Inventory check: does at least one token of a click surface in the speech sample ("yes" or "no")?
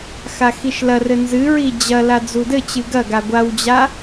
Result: no